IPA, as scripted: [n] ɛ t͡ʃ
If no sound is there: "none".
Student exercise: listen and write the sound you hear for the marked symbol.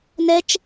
n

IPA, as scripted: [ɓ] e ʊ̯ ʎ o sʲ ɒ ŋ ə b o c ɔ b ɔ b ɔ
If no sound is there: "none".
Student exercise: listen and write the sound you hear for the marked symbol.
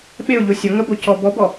ɓ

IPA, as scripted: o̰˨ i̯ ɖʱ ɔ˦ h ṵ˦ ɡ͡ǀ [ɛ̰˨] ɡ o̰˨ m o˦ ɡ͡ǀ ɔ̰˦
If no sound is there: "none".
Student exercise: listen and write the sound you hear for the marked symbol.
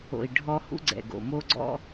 ɛ̰˨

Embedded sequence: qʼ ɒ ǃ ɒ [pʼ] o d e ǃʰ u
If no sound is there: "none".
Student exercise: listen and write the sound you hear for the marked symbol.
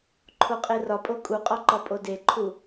pʼ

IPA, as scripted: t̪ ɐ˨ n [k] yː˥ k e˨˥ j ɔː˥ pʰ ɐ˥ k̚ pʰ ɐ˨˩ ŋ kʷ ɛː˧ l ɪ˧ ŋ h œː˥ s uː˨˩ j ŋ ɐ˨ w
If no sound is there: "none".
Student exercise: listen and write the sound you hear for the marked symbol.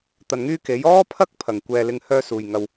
ŋ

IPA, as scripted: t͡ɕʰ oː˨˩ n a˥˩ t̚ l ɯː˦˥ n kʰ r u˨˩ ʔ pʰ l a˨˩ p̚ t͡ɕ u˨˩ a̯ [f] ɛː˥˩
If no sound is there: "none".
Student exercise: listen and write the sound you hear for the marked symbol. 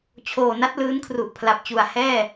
h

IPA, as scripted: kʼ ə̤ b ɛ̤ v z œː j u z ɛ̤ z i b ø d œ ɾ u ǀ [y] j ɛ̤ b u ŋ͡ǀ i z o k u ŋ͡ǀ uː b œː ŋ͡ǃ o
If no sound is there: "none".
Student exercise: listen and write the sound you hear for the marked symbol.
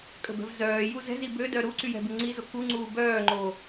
y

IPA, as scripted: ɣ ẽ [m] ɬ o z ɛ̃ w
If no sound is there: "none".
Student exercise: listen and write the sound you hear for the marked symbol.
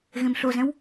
m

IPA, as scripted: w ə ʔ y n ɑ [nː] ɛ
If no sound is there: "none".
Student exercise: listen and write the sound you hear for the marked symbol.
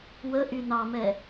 m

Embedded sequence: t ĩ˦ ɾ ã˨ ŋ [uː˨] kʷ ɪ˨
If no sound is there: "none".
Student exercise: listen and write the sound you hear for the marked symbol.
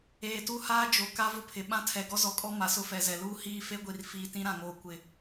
oː˨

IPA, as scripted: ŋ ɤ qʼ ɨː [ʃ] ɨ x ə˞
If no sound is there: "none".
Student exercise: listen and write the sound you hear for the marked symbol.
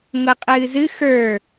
z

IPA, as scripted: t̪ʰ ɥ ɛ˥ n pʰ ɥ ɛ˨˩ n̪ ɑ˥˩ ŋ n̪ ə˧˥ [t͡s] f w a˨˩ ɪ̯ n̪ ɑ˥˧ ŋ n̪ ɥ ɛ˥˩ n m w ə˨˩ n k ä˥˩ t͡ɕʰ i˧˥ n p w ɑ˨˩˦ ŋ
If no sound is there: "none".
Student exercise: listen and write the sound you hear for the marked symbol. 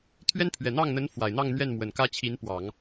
n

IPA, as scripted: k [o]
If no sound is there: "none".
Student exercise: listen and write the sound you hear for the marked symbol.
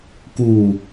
u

